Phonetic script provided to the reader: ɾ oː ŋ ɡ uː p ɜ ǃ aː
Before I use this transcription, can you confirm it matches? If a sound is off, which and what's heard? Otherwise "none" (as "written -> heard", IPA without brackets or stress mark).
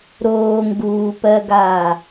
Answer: ǃ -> ɡ